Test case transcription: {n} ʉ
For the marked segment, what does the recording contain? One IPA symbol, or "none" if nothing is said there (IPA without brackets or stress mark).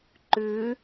ǃ